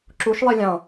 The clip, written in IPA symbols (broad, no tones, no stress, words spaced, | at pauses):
ǁuʃlˠi lʲɑ̃